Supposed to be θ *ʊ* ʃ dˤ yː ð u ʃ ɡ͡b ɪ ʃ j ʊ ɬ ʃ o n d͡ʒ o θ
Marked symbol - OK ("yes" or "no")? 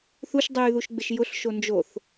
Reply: no